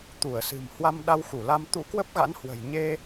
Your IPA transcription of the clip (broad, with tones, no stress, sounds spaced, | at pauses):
t̪ u˧˩ ə̯ s ɨ̤˨˩ m h w a˧ m ɗ a˧ w x u˧˩ l a˧ m t̪ ṵ˧˥ k w ə˦˥ p̚ ɣ a̰˧˥ n h w ə̤˨˩ j ɲ e˧